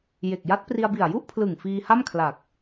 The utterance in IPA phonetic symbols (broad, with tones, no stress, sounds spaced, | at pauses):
j e˨˩ k̚ j a˦˥ t̚ p r i˧ a̯ b i˨˩ a̯ j u˥˩ ʔ pʰ l ɯ˨˩ ŋ f iː˧ h a˥˩ m kʰ l a˨˩ k̚